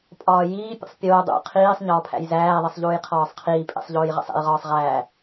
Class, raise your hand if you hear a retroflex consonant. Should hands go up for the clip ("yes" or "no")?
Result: no